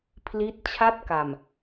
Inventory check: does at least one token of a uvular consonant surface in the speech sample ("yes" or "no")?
no